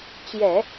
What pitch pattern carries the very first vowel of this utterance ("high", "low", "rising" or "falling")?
low